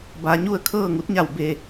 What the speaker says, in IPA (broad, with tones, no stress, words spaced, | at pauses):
ba˩˧ɲu˥˨ə̯ kʰɤː˥˨ŋu˧˥t̚ɲa˧˩w be˧˩